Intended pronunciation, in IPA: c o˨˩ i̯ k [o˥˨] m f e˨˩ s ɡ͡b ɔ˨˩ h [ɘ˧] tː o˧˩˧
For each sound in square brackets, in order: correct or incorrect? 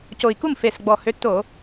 incorrect, incorrect

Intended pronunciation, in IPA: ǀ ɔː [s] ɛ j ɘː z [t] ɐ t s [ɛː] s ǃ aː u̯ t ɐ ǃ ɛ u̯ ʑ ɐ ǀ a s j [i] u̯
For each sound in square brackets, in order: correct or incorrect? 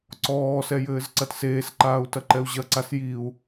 correct, incorrect, incorrect, correct

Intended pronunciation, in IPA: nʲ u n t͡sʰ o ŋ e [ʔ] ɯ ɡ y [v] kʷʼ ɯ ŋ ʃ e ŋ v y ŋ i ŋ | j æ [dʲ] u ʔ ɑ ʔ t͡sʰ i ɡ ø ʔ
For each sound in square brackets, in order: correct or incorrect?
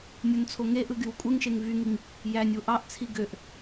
correct, incorrect, incorrect

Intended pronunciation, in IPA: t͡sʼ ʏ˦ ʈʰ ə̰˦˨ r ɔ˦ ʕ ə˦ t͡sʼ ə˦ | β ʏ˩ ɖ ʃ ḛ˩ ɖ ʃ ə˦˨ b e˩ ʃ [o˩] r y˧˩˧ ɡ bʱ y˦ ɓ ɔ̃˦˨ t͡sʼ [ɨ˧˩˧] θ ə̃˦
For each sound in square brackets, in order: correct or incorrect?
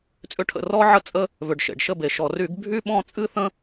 incorrect, incorrect

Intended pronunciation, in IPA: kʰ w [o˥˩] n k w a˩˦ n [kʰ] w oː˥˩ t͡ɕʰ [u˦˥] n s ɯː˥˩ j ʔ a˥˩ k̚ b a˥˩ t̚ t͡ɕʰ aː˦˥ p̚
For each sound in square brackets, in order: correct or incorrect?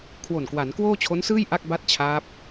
incorrect, incorrect, incorrect

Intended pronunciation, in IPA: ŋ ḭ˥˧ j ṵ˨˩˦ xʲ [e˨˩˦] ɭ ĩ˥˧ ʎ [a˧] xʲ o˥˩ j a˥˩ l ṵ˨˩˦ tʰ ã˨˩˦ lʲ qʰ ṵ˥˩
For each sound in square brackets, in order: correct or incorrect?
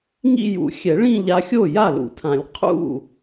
incorrect, correct

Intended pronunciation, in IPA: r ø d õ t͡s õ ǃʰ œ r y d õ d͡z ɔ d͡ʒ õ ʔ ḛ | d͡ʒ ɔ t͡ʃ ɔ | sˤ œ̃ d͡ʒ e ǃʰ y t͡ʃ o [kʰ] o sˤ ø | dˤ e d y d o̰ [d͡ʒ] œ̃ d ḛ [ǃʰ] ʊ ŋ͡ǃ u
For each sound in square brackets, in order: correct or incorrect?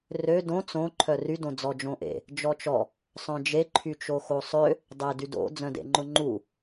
incorrect, incorrect, incorrect

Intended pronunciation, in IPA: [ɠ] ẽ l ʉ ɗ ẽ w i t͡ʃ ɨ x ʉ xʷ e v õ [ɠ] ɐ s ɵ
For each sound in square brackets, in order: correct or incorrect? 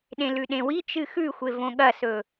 incorrect, correct

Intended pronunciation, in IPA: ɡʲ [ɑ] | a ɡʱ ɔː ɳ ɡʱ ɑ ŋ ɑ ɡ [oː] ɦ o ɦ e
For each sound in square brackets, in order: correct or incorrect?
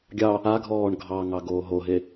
correct, correct

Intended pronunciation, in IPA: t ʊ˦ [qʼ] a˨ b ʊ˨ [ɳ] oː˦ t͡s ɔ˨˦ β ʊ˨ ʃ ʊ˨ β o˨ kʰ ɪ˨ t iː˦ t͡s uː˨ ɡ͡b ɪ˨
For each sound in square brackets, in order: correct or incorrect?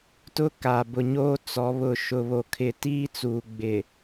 incorrect, incorrect

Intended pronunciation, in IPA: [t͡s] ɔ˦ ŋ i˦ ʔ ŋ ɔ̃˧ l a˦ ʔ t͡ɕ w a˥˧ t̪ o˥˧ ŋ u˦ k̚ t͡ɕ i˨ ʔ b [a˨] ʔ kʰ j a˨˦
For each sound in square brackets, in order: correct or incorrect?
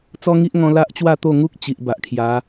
correct, correct

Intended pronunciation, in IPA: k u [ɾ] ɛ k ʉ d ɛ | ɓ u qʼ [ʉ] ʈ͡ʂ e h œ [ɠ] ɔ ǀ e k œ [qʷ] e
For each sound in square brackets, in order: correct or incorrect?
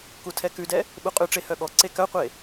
incorrect, correct, correct, correct

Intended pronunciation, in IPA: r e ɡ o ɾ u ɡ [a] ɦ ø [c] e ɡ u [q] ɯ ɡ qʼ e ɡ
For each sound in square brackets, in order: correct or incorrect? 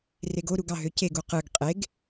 incorrect, correct, correct

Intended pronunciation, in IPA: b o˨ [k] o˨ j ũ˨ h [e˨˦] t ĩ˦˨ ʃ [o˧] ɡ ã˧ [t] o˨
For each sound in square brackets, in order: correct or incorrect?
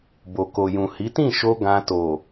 correct, incorrect, correct, correct

